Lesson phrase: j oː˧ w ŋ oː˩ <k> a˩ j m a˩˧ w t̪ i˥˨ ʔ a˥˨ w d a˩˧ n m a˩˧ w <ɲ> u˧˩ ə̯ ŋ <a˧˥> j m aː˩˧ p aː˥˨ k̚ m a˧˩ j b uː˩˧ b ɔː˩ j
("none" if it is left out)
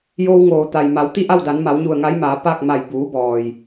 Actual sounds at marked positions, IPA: t̪, ɲ, a˧˥

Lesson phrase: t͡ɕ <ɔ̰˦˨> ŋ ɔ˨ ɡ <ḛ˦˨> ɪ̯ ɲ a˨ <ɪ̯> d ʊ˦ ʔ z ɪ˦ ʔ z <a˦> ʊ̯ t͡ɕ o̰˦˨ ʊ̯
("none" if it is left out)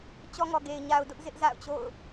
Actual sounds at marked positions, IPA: ɔ˦, e˨, ʊ̯, a̰˦˨

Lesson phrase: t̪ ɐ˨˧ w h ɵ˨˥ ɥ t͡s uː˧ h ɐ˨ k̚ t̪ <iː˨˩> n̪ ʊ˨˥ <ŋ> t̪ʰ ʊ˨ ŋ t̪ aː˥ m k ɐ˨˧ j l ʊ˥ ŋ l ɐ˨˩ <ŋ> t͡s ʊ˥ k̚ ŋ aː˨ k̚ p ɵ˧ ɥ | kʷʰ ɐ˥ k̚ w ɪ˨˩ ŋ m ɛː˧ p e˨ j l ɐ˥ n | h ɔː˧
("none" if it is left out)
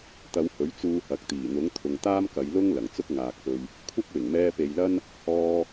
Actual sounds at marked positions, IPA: iː˨˩, ŋ, ŋ

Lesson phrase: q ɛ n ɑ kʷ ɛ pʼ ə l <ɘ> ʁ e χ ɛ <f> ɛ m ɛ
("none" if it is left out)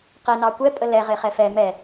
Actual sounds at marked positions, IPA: ɛ, f

